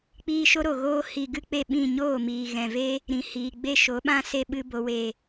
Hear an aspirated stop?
no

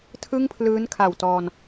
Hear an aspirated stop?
yes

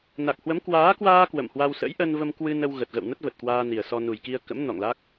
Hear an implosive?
no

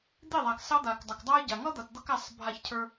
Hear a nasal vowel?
no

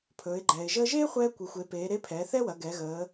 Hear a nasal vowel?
no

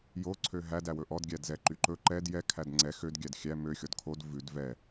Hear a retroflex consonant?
no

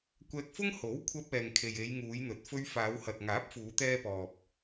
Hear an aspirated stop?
yes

